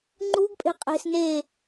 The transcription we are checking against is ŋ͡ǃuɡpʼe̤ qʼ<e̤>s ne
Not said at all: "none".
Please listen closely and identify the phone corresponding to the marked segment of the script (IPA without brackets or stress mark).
e̤